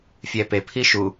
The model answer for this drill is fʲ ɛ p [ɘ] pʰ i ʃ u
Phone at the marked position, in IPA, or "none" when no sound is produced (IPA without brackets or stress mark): e